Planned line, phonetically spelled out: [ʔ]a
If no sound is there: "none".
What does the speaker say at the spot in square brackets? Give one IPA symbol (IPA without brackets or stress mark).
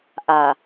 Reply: ʔ